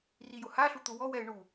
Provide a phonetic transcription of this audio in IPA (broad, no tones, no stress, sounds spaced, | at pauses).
r i j ʊ h a ɬ u t̪ ʊ w ɔ w ɛ ɪ̯ ɳ u